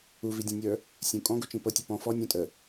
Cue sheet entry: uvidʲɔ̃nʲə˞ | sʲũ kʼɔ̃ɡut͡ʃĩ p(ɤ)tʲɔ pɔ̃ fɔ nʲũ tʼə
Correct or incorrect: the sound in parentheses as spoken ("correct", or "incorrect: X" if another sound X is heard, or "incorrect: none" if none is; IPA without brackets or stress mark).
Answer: correct